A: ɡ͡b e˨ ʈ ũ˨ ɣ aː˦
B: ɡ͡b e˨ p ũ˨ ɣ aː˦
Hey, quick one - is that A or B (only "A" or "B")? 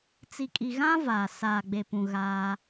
B